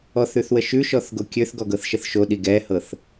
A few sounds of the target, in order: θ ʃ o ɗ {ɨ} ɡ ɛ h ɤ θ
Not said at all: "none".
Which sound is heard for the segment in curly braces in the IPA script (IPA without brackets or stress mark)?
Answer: i